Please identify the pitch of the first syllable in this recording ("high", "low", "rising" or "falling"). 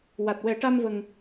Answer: low